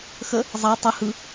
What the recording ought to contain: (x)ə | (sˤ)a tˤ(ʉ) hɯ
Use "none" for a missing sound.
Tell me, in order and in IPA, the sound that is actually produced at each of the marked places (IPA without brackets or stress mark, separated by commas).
x, zˤ, ɨ